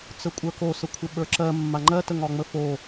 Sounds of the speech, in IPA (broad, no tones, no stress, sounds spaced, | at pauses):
t͡s ə kʷʼ ə˞ k o s ə kʷʰ ɪ ɓ ə˞ ǁ ɜ mː a ŋ͡ǃ ɜ t ə ŋ ɒ ŋ͡m ə f o